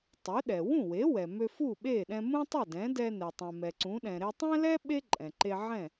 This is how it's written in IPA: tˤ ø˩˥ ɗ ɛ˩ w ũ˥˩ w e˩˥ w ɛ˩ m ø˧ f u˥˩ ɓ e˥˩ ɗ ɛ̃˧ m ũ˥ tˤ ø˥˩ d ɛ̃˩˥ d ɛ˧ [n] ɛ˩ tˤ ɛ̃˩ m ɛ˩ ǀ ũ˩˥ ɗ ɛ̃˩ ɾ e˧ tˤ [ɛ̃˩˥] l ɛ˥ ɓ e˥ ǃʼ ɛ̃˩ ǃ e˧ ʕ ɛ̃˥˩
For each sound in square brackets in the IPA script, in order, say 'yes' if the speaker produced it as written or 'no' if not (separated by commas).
yes, no